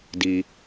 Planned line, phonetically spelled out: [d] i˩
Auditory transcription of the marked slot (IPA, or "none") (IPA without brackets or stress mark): d